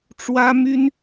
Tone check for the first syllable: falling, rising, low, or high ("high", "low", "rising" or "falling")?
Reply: high